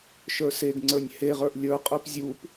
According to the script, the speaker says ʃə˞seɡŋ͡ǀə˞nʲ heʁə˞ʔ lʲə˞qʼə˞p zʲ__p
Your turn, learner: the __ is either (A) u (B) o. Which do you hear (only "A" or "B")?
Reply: A